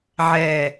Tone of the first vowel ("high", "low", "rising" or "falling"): falling